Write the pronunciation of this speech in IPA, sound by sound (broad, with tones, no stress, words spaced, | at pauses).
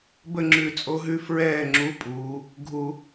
bə˥˩ŋ͡ǁʉ˧˩˧t͡sʼo˧˥ɦʉ˧˥ fɹɛː˥˩ŋ͡ǁu˧˥˧pʼuː˩˧ | ɡʱu˧˩˧